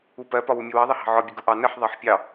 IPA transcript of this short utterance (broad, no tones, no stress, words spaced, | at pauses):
upɜ pɒwumʲəwɑ ðˤʌhɑ̤ʕɒ bʲəɡuʔɑ nəħ ðˤɑħpʲɑ